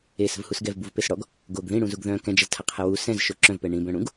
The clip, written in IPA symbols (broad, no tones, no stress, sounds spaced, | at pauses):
e s ə̤ v h u s ɡ ɛ v b u v p e s ɽ ɔ ɡ | ɡ o ɡ ð ĩ ɽ ũ z u ɡ ð œ̃ k ɛ̃ d͡ʒ ɛ z tʰ a qʰ ɛ w u s ɛ̃ z ʃ o ǁ œ̃ v p ɛ ɳ ĩ b œ̃ ɽ ũ ɡ